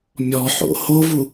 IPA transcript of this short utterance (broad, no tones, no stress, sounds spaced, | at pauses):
mʲ ɔ ħ o̰ h o v u